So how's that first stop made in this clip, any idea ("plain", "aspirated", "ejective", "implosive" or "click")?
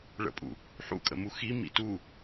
ejective